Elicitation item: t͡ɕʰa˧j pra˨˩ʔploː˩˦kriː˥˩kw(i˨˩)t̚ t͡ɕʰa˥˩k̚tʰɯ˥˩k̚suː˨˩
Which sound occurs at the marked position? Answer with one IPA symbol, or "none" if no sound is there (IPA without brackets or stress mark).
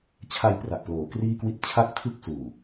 i˥˩